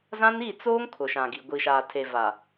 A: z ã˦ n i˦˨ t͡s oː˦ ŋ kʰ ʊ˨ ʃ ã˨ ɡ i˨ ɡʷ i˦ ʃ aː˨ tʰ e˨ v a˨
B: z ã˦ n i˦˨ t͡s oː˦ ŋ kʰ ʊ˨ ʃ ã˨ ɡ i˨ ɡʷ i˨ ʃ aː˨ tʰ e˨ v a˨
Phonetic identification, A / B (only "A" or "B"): B